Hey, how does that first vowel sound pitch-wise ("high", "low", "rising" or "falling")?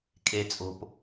low